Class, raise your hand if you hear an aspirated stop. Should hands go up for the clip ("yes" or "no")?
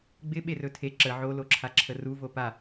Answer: yes